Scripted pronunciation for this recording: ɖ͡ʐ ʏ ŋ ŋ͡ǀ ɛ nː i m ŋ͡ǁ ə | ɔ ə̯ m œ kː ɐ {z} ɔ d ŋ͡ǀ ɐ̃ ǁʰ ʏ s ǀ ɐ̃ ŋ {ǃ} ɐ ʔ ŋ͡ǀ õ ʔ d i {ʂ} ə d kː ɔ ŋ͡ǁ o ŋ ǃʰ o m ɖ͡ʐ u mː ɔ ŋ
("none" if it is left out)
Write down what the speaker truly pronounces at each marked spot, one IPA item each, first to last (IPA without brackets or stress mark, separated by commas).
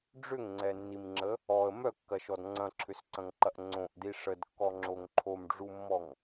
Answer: ʃ, ǃ, ʂ